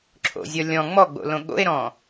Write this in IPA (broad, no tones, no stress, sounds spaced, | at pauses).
ǁʰ o̰ zʲ ɔ lʲ ɔ̃ ŋ͡m ɔ ɡ͡b o̰ l õ ɠ o̰ e̯ ɾ ɔ̃